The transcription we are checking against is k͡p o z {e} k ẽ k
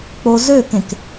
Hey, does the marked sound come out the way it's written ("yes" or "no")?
no